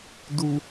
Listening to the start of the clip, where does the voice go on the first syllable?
low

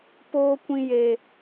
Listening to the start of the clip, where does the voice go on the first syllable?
high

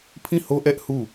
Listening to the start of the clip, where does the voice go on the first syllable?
falling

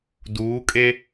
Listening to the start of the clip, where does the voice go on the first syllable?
rising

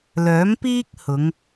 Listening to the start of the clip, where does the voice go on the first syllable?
rising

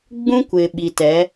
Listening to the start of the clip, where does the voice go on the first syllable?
high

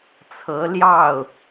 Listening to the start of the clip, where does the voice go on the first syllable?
rising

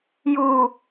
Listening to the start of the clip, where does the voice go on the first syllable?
low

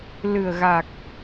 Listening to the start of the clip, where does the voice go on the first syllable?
low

